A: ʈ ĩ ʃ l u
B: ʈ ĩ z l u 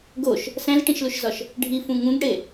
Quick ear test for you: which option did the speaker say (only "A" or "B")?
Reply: A